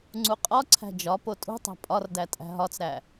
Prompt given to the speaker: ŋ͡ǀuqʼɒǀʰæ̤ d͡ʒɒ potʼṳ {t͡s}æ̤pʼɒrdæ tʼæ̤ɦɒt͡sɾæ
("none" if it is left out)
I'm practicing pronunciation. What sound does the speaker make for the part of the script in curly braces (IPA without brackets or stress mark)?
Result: tˤ